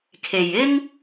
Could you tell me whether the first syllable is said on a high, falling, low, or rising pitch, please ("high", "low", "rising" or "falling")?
low